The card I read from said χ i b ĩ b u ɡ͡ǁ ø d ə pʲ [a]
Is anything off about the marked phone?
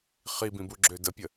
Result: yes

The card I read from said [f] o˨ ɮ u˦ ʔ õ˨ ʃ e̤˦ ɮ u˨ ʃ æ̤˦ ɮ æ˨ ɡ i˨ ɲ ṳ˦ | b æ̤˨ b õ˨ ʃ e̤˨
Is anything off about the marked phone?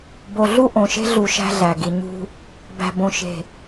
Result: yes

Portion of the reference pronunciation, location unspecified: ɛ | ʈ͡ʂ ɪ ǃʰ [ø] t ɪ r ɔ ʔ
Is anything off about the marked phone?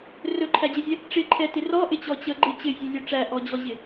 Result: yes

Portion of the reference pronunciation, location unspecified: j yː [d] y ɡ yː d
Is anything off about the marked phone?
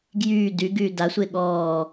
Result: no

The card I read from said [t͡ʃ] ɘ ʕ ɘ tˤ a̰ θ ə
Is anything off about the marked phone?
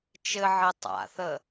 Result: no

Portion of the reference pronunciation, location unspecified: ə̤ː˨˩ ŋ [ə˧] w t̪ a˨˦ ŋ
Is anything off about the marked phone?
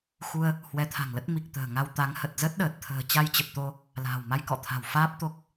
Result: yes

